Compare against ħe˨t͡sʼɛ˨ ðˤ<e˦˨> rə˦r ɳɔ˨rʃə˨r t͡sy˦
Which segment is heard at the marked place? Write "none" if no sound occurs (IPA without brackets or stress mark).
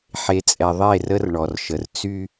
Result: e˦˨